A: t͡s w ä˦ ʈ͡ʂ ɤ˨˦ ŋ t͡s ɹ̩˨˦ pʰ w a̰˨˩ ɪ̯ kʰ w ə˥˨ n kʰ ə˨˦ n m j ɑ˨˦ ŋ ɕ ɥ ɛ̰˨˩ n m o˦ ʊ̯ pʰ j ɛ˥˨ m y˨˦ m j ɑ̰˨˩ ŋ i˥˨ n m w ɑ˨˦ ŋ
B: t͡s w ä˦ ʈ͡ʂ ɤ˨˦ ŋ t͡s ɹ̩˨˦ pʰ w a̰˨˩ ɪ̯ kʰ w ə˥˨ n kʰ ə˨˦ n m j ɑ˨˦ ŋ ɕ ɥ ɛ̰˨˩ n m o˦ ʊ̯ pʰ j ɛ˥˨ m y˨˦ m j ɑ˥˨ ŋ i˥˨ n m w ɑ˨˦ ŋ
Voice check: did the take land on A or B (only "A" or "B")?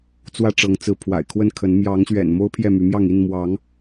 B